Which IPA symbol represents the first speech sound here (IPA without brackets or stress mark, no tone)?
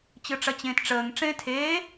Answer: t͡ɕ